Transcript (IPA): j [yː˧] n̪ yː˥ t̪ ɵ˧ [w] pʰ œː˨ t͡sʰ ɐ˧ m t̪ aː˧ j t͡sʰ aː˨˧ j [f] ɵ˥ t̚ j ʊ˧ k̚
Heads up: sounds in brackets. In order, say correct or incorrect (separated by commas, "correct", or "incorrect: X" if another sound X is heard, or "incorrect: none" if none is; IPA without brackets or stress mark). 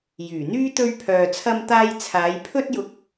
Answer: incorrect: yː˨˩, incorrect: ɥ, incorrect: pʰ